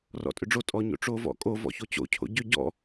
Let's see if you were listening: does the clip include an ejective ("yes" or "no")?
yes